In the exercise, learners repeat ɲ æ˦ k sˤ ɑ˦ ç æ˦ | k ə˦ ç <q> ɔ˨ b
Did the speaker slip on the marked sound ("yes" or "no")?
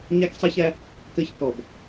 yes